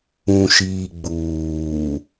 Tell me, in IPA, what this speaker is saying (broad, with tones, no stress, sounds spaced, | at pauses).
ũ˨ ʃ iː˨ ɡ͡b uː˨